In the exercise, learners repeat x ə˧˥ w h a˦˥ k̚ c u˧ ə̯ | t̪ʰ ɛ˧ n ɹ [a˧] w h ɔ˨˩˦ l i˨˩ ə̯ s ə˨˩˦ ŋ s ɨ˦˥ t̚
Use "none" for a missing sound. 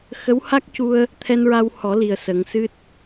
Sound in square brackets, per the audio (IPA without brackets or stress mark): a˧